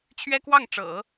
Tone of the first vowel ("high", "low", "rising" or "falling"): high